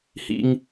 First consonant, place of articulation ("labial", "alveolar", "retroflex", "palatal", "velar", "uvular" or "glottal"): glottal